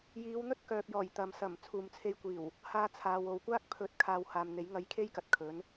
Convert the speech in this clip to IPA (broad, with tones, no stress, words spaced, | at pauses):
jiː˨˧wn̪ɵ˥t̚kœː˨p̚jɔː˨˩j t̪ɐ˨msɐ˨˩m t͡sʰuː˨mt͡sʰe˧jkʷiː˨˩w | haː˧t͡sʰaː˨wo˨wkʷaː˥k̚ pʰɵ˨˥t̚ kʰaː˧whaː˨mn̪e˨˥jŋɐ˧j kʰe˥jkɐ˨t̚ kʰɵ˨˥n